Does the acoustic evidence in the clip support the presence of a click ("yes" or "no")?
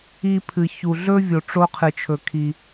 no